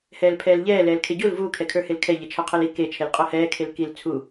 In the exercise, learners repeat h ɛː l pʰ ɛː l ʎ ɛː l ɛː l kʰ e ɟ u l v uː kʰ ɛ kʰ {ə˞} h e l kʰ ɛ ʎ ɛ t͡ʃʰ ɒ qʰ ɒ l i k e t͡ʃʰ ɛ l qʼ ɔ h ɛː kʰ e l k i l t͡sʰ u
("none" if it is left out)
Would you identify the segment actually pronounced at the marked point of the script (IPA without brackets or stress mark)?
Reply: ə˞